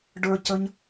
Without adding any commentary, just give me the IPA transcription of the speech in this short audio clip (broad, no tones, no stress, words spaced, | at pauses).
ɖə˞ cəɲ